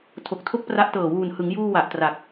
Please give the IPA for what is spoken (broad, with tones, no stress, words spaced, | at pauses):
tʰo˨˩k̚tʰo˥˩k̚pra˦˥ʔtɤː˨˩ wuː˨˩nhɯ˩˦ŋjuː˧ wa˨˩ʔtra˨˩k̚